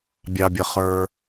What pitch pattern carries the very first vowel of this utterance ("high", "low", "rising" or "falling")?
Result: low